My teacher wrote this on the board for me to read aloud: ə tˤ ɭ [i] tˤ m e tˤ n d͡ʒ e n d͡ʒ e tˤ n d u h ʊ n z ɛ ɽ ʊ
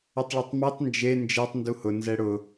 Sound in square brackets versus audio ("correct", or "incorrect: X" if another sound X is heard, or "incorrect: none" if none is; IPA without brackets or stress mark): incorrect: ɪ